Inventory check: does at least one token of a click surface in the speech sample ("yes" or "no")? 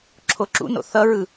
yes